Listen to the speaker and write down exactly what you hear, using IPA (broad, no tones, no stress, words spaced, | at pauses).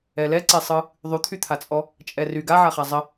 ɛlɛǀesˤɯ | ðˤyt̪ʰyt̪ʰat͡sʼɔ | t͡ʃʼɛry ɡaʕaχa zˤə